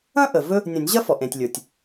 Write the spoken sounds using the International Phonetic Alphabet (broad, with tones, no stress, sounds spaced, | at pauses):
ɐ̃˥ ʔ ə˩ v ɵ˥ | nʲ ɐ̃˨˩˦ nʲ ʑ ɐ˥ f ɔ˩ ʔ ẽ˩ tʲ lʲ ə˞˩ tʲ